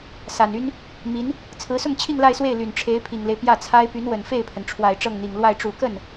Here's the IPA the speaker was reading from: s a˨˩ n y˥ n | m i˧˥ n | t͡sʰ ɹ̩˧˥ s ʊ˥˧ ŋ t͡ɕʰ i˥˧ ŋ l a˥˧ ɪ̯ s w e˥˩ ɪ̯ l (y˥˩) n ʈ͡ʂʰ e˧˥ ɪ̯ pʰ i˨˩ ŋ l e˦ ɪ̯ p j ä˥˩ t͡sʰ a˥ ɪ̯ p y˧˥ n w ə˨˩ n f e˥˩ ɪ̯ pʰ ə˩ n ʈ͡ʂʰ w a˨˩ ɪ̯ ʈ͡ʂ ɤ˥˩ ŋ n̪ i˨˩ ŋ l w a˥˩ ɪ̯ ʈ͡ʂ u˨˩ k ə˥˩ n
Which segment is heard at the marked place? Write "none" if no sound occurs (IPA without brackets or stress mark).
y˨˩